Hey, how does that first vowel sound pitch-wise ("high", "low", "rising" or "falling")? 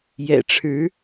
low